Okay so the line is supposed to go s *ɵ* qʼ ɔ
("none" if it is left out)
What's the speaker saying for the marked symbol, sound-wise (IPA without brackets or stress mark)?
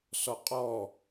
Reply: ɔ